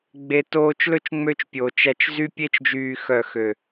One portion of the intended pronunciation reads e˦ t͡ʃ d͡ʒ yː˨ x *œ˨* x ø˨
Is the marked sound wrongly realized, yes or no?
no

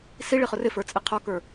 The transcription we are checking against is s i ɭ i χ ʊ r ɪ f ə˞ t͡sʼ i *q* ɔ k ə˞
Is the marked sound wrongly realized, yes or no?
yes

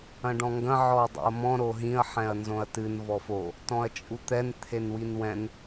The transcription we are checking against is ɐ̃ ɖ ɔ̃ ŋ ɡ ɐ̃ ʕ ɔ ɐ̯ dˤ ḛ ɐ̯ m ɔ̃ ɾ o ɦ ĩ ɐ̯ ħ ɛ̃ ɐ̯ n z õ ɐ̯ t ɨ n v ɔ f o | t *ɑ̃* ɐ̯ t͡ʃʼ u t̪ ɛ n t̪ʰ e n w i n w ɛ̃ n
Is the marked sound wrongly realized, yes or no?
yes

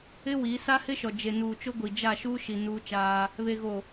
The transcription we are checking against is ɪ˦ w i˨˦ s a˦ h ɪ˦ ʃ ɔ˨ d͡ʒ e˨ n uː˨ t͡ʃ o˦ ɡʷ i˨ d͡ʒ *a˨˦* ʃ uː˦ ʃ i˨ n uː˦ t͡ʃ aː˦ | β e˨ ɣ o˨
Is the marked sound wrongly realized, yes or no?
yes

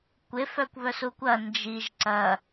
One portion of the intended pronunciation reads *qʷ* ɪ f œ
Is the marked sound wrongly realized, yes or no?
yes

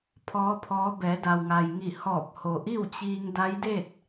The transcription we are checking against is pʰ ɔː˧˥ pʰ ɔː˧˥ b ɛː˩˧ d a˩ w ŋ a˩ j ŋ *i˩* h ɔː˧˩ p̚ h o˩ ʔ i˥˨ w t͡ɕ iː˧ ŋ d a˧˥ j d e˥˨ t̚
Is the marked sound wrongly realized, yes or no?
yes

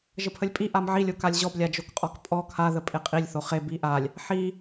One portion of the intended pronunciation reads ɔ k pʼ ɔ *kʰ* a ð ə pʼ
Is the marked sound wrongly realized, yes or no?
no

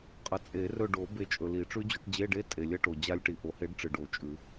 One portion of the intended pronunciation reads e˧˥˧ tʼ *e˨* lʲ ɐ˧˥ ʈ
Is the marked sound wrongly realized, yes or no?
no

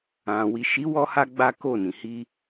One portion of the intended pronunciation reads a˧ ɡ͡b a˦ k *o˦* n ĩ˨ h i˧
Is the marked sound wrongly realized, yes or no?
yes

